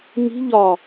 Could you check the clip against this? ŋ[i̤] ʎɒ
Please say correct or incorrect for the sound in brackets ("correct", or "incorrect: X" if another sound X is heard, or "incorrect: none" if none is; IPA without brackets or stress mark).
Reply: correct